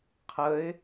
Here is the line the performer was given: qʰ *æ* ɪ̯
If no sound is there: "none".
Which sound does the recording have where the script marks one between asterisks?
ə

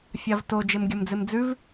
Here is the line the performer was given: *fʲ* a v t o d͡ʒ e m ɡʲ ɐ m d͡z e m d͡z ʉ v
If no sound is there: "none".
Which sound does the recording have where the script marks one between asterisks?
fʲ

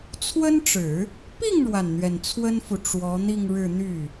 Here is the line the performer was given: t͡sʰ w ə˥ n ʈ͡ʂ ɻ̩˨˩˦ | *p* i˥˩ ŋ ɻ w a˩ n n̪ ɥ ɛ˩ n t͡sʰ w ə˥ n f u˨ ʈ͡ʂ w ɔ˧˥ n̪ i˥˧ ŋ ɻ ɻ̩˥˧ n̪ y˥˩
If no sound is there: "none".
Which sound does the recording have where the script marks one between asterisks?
p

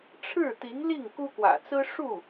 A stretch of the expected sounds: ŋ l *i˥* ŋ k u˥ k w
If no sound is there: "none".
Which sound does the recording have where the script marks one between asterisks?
i˥˩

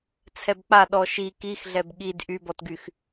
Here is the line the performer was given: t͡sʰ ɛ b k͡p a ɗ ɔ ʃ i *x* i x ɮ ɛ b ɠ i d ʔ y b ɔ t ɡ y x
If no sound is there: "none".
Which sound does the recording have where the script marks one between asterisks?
k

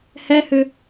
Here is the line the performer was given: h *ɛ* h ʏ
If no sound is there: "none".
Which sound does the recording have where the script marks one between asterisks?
ɛ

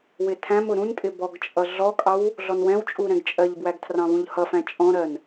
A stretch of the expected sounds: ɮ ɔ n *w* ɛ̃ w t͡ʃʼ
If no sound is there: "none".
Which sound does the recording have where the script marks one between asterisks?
w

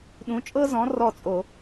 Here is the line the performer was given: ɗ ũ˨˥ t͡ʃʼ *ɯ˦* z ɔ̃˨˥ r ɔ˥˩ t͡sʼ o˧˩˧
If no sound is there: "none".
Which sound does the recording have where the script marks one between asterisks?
ɤ˦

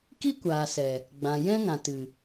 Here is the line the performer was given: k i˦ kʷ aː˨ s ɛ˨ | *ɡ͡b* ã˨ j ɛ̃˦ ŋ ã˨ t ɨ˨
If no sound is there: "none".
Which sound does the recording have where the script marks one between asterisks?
ɡ͡b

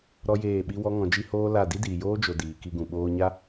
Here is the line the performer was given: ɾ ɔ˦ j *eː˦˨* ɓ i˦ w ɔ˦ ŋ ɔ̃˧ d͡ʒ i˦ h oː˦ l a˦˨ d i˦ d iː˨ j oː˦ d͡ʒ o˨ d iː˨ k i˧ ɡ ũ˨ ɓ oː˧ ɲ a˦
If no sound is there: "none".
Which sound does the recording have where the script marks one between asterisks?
eː˦˨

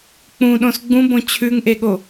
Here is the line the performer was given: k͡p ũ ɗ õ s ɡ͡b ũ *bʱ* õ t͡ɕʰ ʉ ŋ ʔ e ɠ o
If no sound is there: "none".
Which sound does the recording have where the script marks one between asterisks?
b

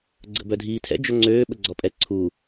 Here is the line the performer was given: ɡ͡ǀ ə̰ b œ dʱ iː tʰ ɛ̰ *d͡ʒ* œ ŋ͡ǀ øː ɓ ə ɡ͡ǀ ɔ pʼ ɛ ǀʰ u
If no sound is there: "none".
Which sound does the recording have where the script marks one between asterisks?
d͡ʒ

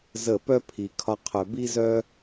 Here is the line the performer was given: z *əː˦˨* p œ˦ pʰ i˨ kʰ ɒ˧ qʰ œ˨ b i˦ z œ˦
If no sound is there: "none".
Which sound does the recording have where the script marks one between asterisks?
ə˦˨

